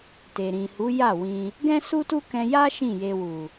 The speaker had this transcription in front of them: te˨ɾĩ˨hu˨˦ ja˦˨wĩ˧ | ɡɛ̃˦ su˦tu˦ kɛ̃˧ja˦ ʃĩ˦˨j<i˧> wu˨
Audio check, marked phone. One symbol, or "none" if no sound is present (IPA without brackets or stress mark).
e˧